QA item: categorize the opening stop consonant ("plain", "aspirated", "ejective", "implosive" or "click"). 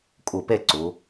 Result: ejective